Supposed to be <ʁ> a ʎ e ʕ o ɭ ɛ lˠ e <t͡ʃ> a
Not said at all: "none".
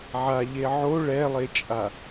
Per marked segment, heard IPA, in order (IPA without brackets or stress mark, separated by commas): ʕ, t͡ʃʼ